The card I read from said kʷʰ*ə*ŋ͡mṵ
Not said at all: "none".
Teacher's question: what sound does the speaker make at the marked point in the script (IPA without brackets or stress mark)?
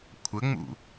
ə